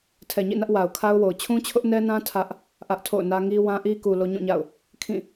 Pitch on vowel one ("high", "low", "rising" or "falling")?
low